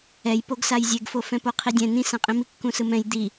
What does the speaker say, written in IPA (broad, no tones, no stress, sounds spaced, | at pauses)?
ɛ j p o ɡ s a j zʲ e ɡ f o f ɛ̃ p o qʰ i dʲ ɛ̃ n ĩ s ã qʼ ĩ m i kː ũ s ɯ m ɛ̃ j d̪ i